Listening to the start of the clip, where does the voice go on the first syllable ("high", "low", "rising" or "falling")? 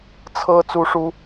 high